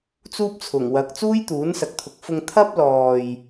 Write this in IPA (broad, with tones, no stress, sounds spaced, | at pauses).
t͡s uː˥ p̚ t͡sʰ ʊ˨˩ ŋ w ɐ˨˥ k̚ t͡s uː˥ j t̪ uː˨˥ n s ɐ˨˥ k̚ t̪ʰ ʊ˨ k̚ f ʊ˧ ŋ t̪ʰ ɐ˥ p̚ l ɔː˨ j